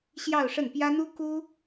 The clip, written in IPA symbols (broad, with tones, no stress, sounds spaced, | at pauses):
ɕ j ɑ˥˧ ʊ̯ ʂ ə˥˩ n p j ä˥ n̪ u˥ k u˥